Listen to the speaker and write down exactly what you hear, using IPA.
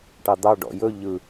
ʈ ɑ d̪ ɑ ɖ ɔ̰ j ɵ ʎ ɯ

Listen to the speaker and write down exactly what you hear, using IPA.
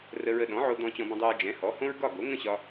r ə˧ ɹ ə˧ ɗ ɔ̃˩˥ ʕ o˧ d̪ ɔ̃˧ t͡ɕ ɔ̃˧ b ə̃˧ dˤ e˧ ɹ d͡ʒ ɛ̃˩˥ h ɔ˩˥ h õ˥ ɹ ɡ ɒ˥˩ ɡ o˩˥ ŋ ə̃˥˩ ɕ ɒ˧

